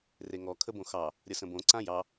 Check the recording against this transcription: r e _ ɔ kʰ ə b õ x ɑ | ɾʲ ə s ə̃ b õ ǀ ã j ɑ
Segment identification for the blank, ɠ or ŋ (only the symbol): ŋ